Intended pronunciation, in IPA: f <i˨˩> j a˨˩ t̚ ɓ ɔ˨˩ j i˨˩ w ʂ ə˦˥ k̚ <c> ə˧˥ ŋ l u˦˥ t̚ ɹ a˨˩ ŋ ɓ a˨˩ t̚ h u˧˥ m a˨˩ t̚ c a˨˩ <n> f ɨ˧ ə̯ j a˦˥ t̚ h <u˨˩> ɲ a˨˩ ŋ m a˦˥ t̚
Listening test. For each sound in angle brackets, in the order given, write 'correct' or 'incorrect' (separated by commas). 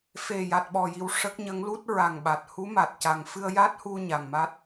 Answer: incorrect, incorrect, incorrect, incorrect